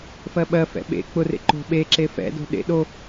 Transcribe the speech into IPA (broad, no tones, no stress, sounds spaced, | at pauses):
f ɜ ɓ ɜ f ɛ̰ ɓ ḛ k͡p ʊ r ḛ ǃ o̤ ɓ e ǁ e f ɛ̰ d o̤ ɗ ḛ ɗ o